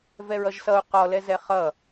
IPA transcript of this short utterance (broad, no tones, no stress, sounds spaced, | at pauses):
v ɛ ɹ ʌ ʒ s ʌ u̯ q ɔ l ɛ z ɛ χ ʌ